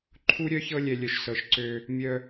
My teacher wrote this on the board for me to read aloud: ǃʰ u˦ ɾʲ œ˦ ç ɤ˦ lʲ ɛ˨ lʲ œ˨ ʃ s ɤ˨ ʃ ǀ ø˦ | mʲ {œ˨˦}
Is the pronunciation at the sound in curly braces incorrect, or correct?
incorrect